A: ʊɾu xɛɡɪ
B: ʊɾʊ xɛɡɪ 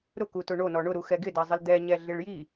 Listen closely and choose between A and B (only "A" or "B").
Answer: A